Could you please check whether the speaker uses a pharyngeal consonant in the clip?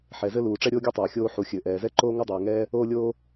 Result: yes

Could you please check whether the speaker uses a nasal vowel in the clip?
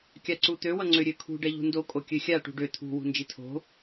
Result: no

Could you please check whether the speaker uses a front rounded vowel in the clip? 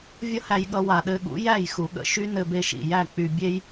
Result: yes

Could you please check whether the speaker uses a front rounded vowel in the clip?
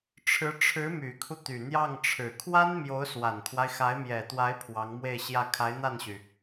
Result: yes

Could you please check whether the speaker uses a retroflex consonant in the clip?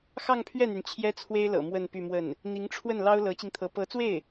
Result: yes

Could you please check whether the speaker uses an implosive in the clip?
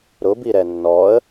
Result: no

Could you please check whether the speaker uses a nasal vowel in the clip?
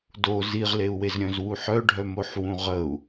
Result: yes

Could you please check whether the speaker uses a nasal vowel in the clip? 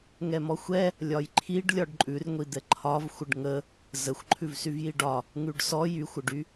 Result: no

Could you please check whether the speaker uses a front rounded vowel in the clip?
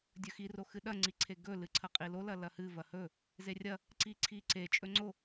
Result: no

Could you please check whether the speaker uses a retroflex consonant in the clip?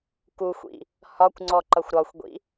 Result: no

